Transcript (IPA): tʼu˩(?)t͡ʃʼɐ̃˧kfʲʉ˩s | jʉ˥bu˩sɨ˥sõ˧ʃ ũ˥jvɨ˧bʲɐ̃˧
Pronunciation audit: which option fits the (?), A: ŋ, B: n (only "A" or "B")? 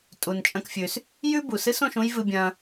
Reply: B